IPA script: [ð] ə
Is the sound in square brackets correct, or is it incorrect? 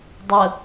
incorrect